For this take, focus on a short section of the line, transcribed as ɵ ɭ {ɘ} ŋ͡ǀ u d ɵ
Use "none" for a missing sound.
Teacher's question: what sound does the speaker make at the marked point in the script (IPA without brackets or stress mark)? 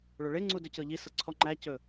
e